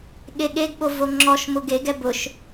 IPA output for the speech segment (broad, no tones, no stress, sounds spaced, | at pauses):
ɠ e ɠ e ɡ ɓ o v o ŋ͡ǁ ɔ ʃ m ʊ ɡ e ɡ ɛ b ʊ ʃ